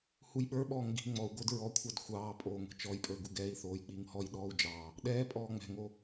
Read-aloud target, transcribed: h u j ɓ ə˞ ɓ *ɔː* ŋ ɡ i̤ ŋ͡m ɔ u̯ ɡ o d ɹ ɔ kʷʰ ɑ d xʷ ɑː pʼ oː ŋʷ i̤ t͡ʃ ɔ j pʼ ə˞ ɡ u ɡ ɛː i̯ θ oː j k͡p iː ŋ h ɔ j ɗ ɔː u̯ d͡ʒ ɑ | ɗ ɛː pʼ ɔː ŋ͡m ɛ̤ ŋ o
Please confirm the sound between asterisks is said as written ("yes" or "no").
yes